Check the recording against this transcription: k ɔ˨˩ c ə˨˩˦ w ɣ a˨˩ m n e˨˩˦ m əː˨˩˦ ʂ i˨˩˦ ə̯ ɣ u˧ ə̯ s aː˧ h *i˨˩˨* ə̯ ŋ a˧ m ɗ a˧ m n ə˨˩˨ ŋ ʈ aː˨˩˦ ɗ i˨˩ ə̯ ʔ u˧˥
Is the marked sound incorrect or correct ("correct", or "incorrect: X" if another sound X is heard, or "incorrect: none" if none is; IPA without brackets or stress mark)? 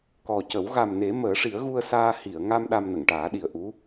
correct